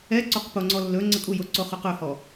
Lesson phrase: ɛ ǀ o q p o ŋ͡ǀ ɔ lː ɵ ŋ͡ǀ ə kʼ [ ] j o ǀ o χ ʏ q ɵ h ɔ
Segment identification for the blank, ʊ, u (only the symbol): u